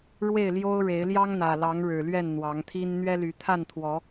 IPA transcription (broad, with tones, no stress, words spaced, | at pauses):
ɻwe˥˨ɪ̯ljo˦ʊ̯ɻe˨˦ɪ̯ ljɑ˦ŋn̪ä˨˩lɑ˨˦ŋ ɻɻ̩˨˩lɥɛ˥˨n n̪wɑ˨˦ŋt̪ʰi˦n n̪ɥɛ˦ly˨˦ t̪ʰa˥˨nt̪ʰwɔ˨˦